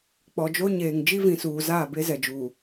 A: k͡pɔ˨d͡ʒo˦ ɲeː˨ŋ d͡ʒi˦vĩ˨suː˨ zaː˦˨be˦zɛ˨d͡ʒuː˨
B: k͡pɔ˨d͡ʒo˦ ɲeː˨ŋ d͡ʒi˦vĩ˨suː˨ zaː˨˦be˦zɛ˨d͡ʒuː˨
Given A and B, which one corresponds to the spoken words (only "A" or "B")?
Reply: A